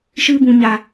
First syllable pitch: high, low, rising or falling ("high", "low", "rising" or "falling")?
high